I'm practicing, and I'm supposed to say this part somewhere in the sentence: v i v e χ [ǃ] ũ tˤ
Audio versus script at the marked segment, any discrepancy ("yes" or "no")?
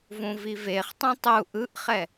yes